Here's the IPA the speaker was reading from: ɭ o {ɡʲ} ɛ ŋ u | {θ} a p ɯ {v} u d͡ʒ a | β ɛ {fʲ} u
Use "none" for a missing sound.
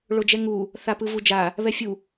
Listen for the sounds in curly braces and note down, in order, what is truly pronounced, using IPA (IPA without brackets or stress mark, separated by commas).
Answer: d͡ʒ, θ, v, fʲ